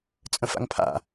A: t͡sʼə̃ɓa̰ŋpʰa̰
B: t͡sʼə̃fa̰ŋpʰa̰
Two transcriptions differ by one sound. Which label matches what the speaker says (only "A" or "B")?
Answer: B